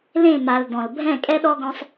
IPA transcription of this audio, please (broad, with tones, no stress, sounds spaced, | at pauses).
l ẽ˦˨ m a˨ l d ɔ̃˨ l bʱ ɛ̃˦˨ kʼ ɛ˦ ɗ ɔ˦ ɡ ɔ̃˦ sˤ